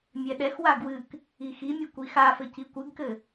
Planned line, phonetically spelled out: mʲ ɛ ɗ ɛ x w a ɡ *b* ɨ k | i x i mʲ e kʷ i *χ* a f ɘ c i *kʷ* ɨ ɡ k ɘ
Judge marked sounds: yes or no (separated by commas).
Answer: no, no, yes